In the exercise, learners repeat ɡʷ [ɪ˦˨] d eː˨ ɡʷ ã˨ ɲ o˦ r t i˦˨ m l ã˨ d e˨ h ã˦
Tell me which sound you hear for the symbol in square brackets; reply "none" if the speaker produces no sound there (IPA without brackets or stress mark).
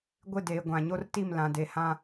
ɪ˦˨